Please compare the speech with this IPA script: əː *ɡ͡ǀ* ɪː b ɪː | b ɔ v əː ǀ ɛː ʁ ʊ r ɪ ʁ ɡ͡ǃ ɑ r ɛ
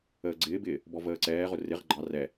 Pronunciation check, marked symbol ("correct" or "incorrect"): correct